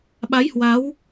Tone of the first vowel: rising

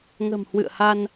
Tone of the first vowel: low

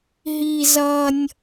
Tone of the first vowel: high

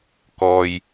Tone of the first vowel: low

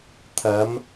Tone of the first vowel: rising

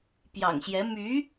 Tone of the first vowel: low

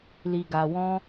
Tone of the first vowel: low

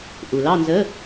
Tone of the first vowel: low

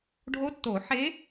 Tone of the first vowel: rising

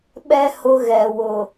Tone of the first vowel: high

